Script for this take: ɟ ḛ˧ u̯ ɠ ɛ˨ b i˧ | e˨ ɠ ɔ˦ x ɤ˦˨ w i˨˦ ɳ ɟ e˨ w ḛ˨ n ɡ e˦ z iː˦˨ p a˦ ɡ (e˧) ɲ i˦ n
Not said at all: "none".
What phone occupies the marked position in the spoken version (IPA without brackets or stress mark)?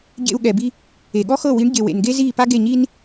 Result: e˦˨